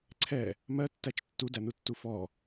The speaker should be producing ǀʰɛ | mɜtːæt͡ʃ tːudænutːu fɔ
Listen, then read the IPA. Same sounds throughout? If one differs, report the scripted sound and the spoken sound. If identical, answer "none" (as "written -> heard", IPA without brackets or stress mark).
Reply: none